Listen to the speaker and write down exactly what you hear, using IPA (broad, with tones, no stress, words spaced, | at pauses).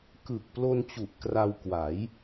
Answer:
kɯ˨˩k̚plo˧nt͡ɕu˨˩ʔ kra˧wkwa˩˦j